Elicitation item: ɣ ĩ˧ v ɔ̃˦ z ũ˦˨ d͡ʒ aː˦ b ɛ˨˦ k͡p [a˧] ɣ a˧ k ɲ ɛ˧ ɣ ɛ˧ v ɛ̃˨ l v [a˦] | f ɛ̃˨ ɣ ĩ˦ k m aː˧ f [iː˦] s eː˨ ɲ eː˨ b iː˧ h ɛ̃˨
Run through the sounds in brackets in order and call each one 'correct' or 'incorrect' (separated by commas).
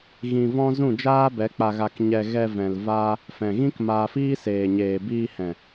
correct, correct, correct